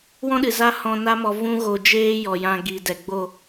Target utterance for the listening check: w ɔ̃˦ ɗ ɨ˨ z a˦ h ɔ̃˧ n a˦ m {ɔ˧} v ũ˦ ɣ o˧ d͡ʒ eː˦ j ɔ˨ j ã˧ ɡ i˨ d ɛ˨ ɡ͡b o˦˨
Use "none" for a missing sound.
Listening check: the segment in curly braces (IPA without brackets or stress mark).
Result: ɔ˧